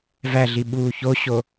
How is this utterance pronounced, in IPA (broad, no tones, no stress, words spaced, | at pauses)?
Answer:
væɮi ɓuːçoɕo